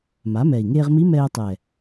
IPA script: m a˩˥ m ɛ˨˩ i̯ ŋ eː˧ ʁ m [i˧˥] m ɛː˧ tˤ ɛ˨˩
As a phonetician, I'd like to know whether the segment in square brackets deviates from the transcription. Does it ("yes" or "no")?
no